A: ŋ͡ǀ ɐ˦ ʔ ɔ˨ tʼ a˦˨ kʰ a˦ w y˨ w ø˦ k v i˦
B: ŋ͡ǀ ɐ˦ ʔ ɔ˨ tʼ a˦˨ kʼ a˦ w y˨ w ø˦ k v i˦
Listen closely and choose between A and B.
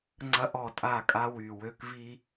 B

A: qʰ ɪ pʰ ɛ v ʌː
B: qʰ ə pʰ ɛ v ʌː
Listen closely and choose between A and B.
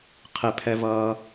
A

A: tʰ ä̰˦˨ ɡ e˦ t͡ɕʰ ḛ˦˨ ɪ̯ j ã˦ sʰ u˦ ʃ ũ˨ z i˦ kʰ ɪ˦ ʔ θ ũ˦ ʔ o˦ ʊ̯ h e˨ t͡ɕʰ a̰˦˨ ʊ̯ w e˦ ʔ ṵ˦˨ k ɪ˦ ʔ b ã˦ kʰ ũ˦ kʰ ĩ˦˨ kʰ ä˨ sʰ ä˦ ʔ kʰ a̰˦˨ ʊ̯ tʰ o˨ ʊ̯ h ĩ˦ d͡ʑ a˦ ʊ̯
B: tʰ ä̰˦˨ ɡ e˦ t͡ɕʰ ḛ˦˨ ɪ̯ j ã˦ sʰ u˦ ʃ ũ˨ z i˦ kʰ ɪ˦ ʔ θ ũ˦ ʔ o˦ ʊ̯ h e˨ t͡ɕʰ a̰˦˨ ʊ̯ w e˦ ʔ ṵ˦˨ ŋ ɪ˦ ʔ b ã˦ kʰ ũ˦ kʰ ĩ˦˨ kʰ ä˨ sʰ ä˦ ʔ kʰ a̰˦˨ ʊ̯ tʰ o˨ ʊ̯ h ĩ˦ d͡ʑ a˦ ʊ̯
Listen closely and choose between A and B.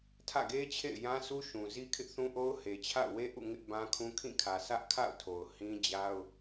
B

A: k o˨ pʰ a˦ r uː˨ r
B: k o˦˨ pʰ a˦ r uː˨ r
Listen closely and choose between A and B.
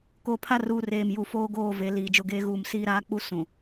A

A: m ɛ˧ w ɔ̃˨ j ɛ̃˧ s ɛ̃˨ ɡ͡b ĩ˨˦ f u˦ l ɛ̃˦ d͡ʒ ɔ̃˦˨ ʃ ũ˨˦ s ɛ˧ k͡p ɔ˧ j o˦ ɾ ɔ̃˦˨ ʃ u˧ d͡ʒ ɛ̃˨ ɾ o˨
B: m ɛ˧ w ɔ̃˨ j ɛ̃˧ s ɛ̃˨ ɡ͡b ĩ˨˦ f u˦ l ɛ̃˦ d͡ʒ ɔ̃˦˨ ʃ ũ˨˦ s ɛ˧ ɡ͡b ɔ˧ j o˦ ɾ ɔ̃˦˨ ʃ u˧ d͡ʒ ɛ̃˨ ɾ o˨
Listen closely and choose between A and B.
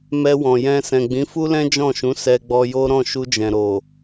B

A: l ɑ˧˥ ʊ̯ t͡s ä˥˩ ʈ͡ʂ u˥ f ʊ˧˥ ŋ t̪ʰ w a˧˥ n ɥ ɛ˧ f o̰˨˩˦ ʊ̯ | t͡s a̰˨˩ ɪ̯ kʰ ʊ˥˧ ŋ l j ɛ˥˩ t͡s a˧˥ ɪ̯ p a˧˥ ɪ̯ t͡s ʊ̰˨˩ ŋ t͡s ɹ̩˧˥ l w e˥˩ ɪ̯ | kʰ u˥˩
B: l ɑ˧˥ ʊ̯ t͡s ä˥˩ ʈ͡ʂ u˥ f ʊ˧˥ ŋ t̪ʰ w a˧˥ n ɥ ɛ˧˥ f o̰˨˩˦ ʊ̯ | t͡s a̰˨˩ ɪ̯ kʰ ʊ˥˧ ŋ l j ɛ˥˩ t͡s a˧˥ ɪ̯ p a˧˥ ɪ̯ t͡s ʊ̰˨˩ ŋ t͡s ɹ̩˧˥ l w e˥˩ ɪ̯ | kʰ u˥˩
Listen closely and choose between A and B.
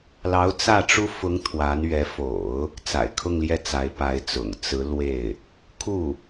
B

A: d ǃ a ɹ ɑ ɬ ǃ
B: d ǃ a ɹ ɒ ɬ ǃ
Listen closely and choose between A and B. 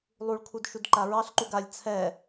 A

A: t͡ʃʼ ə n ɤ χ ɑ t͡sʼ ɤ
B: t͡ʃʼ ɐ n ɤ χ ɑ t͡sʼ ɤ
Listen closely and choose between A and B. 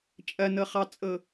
B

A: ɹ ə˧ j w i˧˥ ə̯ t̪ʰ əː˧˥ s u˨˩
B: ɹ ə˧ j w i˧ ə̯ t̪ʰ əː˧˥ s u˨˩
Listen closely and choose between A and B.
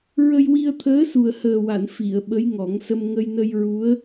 B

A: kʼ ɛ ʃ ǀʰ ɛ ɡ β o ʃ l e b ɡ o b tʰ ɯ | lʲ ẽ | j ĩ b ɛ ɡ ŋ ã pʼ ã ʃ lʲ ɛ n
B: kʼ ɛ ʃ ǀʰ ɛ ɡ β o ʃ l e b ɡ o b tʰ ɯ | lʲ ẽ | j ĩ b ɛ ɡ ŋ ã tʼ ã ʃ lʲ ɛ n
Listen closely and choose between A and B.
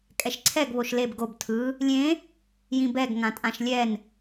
B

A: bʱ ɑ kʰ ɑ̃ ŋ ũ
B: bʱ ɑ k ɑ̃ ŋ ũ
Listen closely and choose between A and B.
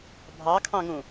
A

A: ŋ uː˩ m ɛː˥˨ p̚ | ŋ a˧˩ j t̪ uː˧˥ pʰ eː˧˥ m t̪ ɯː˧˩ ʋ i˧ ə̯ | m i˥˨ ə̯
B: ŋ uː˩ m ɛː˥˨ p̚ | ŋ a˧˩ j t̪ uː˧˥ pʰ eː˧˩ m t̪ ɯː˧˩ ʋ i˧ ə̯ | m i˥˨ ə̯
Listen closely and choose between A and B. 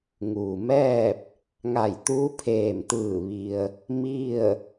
B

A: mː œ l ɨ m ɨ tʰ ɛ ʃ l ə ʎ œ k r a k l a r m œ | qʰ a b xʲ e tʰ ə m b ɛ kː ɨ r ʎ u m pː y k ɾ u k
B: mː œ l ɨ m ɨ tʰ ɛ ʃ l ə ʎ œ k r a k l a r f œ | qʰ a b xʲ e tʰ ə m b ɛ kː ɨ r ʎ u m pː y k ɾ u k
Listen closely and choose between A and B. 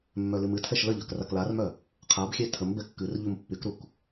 A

